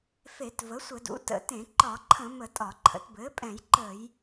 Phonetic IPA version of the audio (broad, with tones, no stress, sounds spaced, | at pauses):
f e˧˩˧ t v ə˩˥ sʷ ə˧˩˧ d ṵ˩˥ t ə̰˧˩˧ t ẽ˧˩˧ ǃ ɒ˧˩˧ ǃʰ ə̃˧˩˧ m ə˧˩˧ tʼ ɒ˧˩˧ ǃʰ ə̰˩˥ t b ɘː˩˥ pʼ ɛ̃˧˩˧ j ǃ əː˧˩˧ j